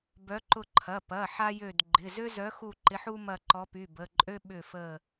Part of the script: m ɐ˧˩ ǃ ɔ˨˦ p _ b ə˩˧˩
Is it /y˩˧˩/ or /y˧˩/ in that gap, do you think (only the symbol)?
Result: y˩˧˩